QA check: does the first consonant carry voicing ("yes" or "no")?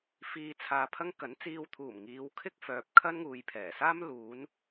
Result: no